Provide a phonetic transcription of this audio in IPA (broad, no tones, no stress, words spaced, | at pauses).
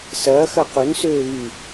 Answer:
sɐːxɐ qʊnsøː βy